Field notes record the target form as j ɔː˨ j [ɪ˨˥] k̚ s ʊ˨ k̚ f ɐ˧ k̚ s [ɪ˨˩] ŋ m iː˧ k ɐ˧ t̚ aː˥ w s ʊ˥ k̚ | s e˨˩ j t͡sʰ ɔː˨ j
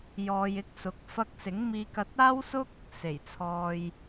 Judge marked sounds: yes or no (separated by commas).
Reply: yes, no